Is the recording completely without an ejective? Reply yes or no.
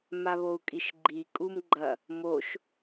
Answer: no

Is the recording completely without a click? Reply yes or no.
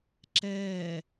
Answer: no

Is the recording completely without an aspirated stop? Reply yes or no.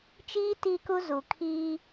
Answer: no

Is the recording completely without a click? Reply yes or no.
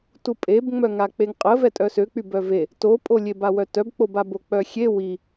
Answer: yes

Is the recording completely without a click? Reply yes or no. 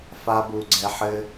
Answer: no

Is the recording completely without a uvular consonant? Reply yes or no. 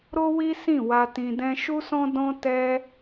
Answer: yes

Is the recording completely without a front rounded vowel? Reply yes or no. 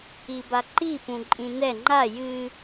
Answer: yes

